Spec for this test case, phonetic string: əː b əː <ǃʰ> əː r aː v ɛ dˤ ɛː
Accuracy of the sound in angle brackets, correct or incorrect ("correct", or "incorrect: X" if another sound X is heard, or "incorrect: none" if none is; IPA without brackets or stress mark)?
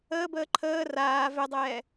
correct